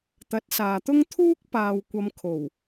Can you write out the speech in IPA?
t̪ɐ˨˥t̚saː˨t̪ʊ˥ŋ t̪ʰuː˥k̚ paː˨w kʷɐ˧m kʰo˨˩w

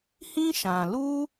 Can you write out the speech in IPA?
hĩ˦ʃã˨ lu˦

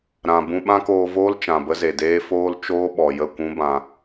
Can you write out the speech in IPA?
ɾã˨ bũ˧ɓã˦koː˧voː˦l t͡ʃã˨bə˦ze˨deː˦ foː˦l t͡ʃoː˦ɓɔ˨jə˦˨ kʷũ˦bã˧

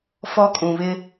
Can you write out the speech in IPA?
fɔ˦kʼũ˨βɪ˦

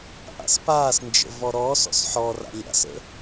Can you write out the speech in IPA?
ʔa̰spaːsnd͡ʒə̰ vɔɾɔːsɔ̰s ħɔra̰ lʲa̰sə̰

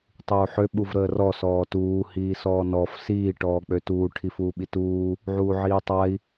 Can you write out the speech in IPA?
tˤuːħø ɓuvɾəːrɔ sɔːtuː hiːsɔːnɔf siː ʈɔːk͡pøtuː ʈʰifuːɓituː | ʕuːʕiːtˤai̯

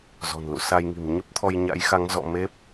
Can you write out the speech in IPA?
zɔ̤˨˩nlṵ˧˨sa˧jŋi̤˨˩m ɲə˦˥p̚t̪ʰɔ˧j ɲa̰˧˥jxa˨˦ŋ zɔ̰˧˨me˦˥p̚

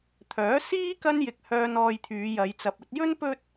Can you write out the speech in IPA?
t̪ʰœː˨˥siː˥ kɐ˥njɪ˧k̚hœː˧n ɔː˧jt̪ʰyː˨˧jɐ˨˧j t͡sɐ˨p̚ɵ˧t̚jɵ˥n pɵ˥t̚

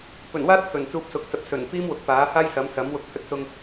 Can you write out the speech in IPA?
pɵ˨˩n waː˥t̚pʰɵ˨˩n t͡suː˧p̚sʊ˨˥k̚t͡sɐ˨p̚ sɵ˨˩n piː˥mwʊ˨k̚paː˨˥haː˥j sɐ˨˥msɐ˨˥m wʊ˧k̚hɵ˥t̚sʊ˧ŋ

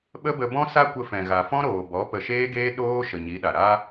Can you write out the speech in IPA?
ɓə˦bə˧ bɔ̃˦sa˦kʷə˧fɛ̃˨ ɣa˨fɔ̃˦ɾoː˨bɔ˨˦ pə˨ʃeː˦ɡeː˦ ɗoː˦ ʃə˨ɲi˨˦ ɗa˨ ɾa˦

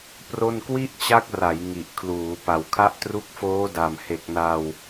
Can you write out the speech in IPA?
pro˥˩n kwi˥˩ʔt͡ɕa˦˥k̚ra˩˦j ŋi˨˩ʔkʰluː˩˦pa˨˩w kʰa˦˥ʔtru˦˥k̚foː˦˥da˨˩m he˨˩k̚na˧w

